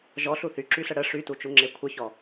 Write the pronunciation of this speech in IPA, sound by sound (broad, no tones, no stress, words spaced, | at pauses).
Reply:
ʒɔɬu θyǁyɬə ɽə ʂytut͡ʃuŋ͡ǁe kʷʰəçɔ